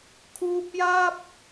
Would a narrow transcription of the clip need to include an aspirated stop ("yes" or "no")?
yes